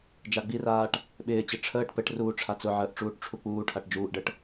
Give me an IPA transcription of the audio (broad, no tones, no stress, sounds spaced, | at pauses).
d͡ʒ a ɡ͡b i r aː ʈ | ɓ ɪː t͡ɕ ɘ ʈ͡ʂʰ əː ʈ p ɘ ʈ r uː ʈ͡ʂʰ a t͡s ʊ ʕ əː ʔ ʈ͡ʂ uː ʈ ʈ͡ʂʰ u k͡p uː ʈʰ a ʈ d͡ʒ uː ʔ ɖ ə ʈ